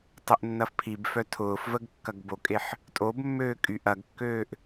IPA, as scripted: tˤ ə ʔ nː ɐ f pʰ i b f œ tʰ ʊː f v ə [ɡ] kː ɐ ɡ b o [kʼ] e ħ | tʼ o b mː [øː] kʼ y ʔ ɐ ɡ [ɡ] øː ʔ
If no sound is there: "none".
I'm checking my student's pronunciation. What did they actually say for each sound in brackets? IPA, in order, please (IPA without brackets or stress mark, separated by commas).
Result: ɡ, kʼ, øː, kː